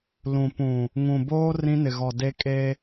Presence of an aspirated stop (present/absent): absent